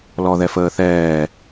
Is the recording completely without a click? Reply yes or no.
yes